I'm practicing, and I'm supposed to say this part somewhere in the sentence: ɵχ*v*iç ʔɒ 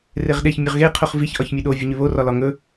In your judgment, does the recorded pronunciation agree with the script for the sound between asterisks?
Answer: yes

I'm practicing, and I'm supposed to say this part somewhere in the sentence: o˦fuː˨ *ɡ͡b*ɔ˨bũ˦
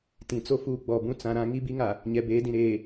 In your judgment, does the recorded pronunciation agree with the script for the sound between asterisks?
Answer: yes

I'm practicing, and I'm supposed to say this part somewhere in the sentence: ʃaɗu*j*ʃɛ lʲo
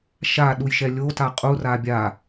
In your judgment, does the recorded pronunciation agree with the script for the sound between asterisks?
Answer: yes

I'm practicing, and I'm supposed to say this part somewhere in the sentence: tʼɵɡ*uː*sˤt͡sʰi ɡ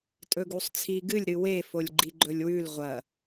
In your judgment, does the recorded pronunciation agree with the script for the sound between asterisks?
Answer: no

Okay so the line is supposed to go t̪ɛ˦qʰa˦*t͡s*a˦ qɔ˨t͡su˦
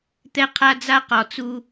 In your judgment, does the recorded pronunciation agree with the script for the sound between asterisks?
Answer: no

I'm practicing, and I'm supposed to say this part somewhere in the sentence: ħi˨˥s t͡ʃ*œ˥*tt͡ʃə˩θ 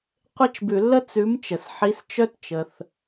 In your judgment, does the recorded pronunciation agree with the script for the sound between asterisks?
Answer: yes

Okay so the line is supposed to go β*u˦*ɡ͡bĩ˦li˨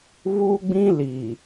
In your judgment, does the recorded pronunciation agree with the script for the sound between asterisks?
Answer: yes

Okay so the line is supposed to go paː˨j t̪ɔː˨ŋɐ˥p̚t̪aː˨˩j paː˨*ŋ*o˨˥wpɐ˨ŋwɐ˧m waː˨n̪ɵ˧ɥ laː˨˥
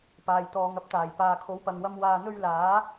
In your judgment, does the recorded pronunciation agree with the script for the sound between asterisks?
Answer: no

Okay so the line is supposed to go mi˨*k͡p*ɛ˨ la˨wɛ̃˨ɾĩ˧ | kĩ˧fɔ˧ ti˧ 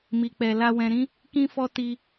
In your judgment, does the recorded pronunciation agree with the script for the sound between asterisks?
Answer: yes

